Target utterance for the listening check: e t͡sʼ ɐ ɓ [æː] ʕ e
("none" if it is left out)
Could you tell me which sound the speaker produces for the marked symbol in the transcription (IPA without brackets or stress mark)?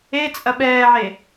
ɛː